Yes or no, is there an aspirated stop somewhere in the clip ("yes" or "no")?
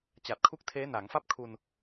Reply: yes